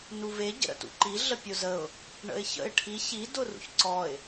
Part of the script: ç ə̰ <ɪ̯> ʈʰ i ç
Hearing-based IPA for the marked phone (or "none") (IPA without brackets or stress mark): ɪ̯